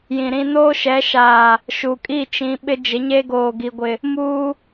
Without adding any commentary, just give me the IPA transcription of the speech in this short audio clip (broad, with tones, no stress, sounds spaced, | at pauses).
j ĩ˨ ɾ ĩ˦ n oː˦ ʃ ɛ˨˦ ʃ aː˨ | ʃ u˨ kʼ i˦˨ t͡ʃ ĩ˨˦ ɓ ɪ˦ d͡ʒ ɪ˨˦ ɲ e˦ ɡ oː˨ ɡ i˨ ɡʷ ɪ˨ | m uː˦